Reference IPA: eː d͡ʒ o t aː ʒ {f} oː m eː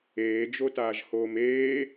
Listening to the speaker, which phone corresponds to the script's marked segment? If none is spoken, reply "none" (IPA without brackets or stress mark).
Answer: h